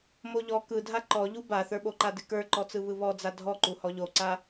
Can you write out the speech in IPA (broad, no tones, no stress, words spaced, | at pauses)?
moʎɔ kɯdʱa ǃɔʎu baθə˞ɓoǃa dɪkə˞ǃɔt͡sɯ βɯβɔd͡za dʱɔǃu hɔʎoǀa